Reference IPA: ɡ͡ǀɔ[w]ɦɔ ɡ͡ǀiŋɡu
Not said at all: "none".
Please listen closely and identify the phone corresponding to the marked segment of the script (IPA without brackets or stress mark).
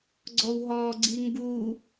w